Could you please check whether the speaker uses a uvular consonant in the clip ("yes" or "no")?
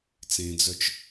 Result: no